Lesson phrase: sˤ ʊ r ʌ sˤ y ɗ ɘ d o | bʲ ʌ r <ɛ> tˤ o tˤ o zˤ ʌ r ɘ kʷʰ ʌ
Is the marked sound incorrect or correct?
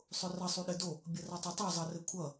correct